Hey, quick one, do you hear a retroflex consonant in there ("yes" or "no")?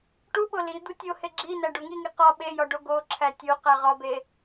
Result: yes